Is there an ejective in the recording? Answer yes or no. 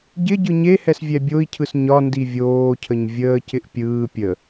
no